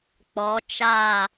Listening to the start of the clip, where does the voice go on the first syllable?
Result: rising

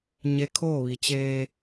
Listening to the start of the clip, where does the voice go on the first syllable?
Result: rising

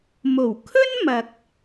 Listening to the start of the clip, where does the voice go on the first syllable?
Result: low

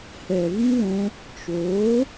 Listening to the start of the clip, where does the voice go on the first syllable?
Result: low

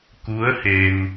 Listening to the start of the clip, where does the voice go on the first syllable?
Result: rising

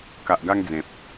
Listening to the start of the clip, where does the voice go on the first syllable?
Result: low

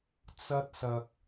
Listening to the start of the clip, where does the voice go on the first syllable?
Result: high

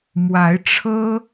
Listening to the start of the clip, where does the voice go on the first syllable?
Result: rising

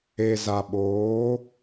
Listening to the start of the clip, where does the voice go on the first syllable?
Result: low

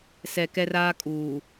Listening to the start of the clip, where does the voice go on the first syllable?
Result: low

